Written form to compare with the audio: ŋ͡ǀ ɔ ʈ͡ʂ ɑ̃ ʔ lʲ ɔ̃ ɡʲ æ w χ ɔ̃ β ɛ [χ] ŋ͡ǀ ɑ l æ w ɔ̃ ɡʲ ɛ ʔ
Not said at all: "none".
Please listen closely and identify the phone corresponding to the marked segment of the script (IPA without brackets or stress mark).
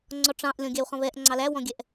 ʔ